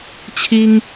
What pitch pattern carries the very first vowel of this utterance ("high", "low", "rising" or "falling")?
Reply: high